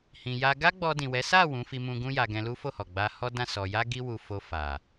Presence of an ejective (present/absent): absent